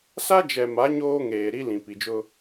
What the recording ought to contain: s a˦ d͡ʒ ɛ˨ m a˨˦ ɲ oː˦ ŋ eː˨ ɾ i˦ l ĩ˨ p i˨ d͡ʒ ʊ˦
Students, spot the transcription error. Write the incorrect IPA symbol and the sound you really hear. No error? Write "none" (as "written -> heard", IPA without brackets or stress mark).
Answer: none